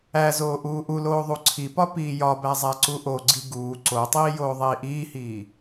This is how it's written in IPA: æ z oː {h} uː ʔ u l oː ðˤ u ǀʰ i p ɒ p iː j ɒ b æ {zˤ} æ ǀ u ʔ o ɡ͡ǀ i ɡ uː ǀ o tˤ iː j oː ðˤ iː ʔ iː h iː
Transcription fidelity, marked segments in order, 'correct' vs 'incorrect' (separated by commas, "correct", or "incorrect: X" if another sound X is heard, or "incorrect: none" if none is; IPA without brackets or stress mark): incorrect: ʔ, correct